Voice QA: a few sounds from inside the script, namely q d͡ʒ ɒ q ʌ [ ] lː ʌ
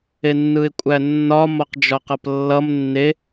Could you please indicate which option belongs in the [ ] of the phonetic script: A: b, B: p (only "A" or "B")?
B